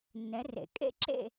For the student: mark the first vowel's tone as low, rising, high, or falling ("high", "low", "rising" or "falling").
rising